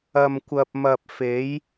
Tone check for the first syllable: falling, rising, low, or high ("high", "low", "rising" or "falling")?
low